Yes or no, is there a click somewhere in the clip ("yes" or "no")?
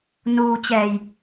no